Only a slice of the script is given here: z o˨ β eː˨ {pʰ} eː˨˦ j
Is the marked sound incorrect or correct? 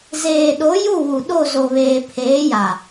correct